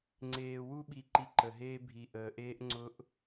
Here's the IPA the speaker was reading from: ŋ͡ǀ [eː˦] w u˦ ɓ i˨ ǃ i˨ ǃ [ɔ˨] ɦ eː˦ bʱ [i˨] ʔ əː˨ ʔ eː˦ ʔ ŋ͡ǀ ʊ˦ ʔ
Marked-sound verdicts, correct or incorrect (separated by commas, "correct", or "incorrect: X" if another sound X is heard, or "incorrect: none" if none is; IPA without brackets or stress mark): incorrect: eː˨, incorrect: ə˨, correct